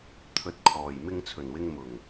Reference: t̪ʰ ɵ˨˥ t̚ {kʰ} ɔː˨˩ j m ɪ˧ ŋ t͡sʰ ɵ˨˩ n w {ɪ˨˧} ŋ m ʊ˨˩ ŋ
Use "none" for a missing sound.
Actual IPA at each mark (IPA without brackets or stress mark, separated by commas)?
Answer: kʰ, ɪ˧